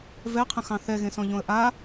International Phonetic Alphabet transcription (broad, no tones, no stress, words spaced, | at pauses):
vɛqʰə̃xɑ̃ θɛɣẽsɔ̃ʎõə̯ ʔa